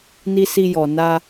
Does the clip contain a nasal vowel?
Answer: no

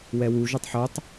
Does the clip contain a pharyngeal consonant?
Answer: yes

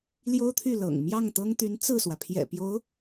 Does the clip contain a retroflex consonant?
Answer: no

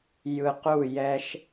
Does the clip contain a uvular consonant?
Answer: yes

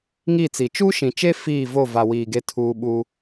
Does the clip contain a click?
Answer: no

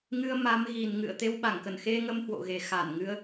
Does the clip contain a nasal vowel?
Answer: no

